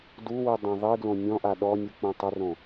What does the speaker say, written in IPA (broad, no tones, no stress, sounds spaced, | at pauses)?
d u w i dˤ ə̃ ðˤ i ɡ l õ nʲ ɔ̃ ʔ a ɗ ɔ nʲ u k͡p ũ tˤ ə r õ